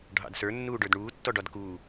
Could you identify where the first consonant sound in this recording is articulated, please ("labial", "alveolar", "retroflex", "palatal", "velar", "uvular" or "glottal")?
retroflex